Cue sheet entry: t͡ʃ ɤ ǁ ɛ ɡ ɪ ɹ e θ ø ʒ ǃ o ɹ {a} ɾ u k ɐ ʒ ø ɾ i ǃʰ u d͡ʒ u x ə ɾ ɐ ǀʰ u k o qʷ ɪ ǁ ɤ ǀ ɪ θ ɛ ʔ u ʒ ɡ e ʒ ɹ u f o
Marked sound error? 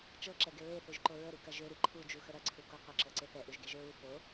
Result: yes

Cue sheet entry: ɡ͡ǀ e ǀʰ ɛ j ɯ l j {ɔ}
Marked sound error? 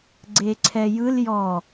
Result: no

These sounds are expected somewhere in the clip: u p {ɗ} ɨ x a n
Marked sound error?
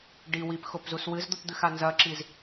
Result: yes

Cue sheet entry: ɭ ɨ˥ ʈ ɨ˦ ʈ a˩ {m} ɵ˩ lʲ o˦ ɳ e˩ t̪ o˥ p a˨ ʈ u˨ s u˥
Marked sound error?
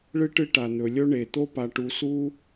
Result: yes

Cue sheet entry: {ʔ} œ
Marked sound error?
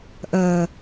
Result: no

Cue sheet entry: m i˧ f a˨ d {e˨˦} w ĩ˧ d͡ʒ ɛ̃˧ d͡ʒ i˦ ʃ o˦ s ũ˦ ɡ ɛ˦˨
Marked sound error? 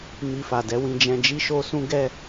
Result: yes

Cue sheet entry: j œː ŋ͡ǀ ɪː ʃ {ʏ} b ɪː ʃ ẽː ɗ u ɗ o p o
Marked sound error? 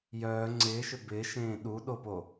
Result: no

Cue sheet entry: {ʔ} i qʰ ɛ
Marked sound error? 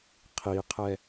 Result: yes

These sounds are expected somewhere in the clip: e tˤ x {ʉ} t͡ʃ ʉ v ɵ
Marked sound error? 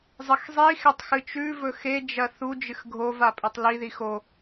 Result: yes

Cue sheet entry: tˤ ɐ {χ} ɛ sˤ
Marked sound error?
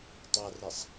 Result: yes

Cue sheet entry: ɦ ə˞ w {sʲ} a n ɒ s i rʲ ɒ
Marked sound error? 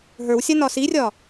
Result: no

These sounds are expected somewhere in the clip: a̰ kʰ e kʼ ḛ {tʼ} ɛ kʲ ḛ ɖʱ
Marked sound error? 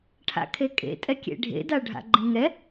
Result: no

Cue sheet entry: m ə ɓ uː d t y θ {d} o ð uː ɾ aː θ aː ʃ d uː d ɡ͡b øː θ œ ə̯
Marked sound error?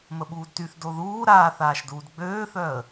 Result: no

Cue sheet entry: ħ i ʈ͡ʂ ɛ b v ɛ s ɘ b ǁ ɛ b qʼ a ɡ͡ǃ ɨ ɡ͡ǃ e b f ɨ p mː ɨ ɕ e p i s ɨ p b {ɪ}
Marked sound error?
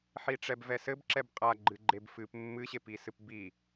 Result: yes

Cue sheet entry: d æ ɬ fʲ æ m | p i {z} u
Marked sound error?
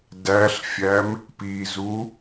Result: no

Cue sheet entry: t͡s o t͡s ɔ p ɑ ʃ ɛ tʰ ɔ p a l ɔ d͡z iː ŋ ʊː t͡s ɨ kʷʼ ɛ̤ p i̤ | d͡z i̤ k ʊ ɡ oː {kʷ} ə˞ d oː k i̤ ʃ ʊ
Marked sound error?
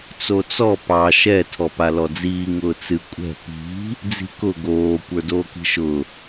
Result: no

